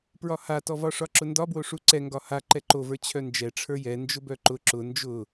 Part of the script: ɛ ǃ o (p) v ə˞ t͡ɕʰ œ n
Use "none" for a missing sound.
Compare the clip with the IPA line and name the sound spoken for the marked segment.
none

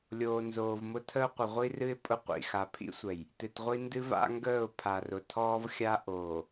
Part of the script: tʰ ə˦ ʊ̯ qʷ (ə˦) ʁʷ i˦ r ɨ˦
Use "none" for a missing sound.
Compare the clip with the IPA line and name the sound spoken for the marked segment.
ə˨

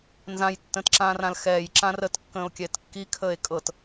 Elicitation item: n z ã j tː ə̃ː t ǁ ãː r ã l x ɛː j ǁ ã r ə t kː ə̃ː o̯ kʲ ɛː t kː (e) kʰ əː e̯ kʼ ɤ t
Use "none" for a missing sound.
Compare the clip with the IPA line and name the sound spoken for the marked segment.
i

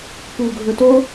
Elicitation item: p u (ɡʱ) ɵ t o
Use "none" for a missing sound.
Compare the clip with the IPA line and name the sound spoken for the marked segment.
ɡʱ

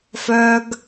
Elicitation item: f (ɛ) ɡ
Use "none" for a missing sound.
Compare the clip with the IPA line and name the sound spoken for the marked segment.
œ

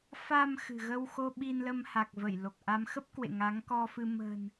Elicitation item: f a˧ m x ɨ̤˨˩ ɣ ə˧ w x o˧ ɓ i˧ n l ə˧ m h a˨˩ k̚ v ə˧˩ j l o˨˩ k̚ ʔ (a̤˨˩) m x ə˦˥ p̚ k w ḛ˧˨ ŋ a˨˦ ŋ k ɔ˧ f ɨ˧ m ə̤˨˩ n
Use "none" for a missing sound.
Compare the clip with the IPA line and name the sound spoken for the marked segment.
a˨˦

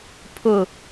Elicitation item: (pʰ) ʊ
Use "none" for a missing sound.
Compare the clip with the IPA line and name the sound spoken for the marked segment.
pʰ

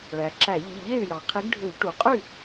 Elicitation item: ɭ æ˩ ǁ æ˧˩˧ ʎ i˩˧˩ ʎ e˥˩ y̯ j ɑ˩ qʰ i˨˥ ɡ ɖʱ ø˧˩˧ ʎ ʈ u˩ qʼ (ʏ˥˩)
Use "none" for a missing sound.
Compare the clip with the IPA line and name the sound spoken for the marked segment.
y˥˩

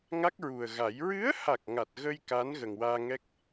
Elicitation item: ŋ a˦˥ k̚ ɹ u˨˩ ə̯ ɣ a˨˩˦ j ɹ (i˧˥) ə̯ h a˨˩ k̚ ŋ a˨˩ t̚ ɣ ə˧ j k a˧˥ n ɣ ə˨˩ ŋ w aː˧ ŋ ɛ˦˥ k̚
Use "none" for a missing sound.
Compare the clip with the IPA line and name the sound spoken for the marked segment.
ɨ˧˥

